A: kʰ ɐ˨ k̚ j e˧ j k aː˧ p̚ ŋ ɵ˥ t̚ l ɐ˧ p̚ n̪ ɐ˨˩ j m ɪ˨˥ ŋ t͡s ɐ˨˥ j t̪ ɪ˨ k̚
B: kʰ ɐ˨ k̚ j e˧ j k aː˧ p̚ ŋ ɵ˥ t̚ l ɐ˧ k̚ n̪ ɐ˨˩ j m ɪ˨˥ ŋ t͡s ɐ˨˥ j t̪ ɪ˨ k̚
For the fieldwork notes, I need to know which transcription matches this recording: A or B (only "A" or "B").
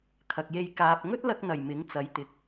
B